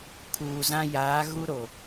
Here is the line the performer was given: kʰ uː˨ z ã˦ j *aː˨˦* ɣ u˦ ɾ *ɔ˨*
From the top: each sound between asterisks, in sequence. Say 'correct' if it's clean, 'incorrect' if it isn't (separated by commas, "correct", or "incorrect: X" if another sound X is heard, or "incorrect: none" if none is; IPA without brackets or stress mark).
correct, incorrect: o˨